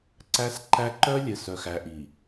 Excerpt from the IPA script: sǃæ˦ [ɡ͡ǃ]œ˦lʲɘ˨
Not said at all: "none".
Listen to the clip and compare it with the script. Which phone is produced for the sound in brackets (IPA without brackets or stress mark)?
ǃ